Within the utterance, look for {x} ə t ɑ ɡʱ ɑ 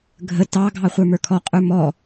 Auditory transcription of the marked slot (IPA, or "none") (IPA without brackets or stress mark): ɡʱ